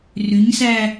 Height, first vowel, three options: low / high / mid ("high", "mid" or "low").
high